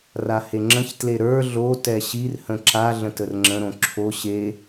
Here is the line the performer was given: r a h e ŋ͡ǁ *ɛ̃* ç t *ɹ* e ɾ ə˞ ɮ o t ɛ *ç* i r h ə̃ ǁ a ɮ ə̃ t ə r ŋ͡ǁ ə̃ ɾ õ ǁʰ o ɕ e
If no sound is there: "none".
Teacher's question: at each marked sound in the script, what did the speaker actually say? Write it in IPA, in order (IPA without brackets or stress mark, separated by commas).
ə̃, l, ɕ